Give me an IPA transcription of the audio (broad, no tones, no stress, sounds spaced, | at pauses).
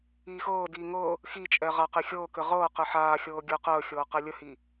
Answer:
iː x ɤː d iː ŋ ɤ | x i t͡ʃʼ ɛ ʁ a q e xʲ ɤː k ɘ ʁ ɤː q ɘ ħ aː xʲ ɤː ɡʲ əː q əː xʲ ɤː q ɛ lʲ ə h i